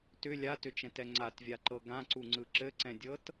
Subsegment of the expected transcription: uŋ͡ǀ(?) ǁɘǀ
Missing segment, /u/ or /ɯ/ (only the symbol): ɯ